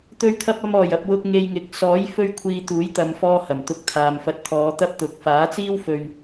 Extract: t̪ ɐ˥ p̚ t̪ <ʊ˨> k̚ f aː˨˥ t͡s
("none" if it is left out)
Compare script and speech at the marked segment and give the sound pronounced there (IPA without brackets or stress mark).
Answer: ʊ˨